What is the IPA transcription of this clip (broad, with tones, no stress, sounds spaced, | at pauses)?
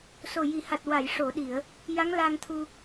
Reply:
s o˨˩ j i˨˩˨ h a˨˩ t̚ w a˨˩˨ j ʂ o˨˩˨ ɗ i˨˩˨ ə̯ | j a˧˥ ŋ l a˧ ŋ t̪ʰ u˧